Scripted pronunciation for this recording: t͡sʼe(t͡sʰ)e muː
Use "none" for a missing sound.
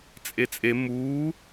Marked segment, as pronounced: t͡sʼ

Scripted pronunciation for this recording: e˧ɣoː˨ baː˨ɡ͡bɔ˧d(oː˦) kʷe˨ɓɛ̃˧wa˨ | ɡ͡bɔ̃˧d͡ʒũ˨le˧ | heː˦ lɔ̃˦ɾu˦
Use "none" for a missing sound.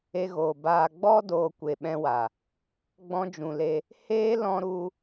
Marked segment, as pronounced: oː˨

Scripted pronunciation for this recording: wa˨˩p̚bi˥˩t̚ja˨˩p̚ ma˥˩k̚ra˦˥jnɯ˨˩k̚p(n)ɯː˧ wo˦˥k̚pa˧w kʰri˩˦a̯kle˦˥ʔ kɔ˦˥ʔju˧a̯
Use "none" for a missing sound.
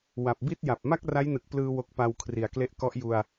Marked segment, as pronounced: l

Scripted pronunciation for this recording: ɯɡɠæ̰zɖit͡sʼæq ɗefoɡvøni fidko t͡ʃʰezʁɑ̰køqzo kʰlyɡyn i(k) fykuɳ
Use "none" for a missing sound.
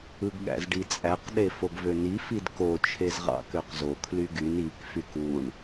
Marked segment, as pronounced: k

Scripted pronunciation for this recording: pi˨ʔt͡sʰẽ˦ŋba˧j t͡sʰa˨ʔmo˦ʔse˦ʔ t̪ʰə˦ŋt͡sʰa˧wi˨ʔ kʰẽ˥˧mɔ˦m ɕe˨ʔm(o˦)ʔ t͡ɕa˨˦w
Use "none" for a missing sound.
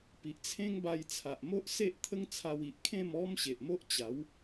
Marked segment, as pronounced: o˦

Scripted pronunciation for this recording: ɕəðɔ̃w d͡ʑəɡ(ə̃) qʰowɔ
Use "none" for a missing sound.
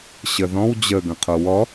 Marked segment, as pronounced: ə̃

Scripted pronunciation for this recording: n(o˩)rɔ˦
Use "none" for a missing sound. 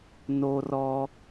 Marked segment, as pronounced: o˦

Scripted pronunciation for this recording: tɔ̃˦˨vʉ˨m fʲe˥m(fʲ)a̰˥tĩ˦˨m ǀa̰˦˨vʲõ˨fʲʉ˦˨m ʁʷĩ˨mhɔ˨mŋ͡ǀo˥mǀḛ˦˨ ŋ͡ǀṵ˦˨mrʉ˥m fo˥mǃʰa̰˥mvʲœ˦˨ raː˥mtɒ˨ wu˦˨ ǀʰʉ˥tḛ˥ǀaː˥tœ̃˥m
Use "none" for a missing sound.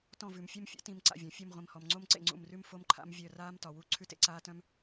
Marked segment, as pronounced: fʲ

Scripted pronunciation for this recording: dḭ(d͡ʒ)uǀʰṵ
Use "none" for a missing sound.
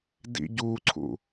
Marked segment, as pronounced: ɟ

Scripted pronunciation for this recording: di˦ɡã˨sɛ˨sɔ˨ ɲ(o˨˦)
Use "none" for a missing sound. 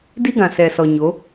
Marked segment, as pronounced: o˨˦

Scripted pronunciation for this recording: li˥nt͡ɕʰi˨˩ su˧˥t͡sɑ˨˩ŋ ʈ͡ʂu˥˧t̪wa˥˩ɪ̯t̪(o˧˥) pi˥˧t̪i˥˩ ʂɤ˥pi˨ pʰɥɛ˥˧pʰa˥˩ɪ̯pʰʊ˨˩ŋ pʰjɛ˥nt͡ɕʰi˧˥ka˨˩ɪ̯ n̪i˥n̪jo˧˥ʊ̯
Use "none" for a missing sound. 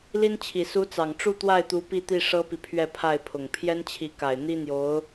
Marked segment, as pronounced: u˧˥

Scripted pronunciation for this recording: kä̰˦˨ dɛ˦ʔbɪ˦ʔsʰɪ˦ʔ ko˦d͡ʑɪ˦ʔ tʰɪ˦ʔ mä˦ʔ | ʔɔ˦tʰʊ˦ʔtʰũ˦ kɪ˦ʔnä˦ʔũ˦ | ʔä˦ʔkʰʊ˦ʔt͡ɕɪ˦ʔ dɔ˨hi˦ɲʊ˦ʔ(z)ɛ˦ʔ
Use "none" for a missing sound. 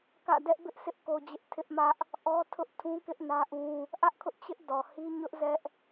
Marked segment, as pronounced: z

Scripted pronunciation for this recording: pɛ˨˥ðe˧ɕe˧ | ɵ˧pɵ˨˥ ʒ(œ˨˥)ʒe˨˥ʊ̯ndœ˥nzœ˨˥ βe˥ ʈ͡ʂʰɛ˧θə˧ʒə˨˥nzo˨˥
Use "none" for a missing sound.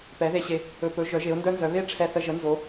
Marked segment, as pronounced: œ˨˥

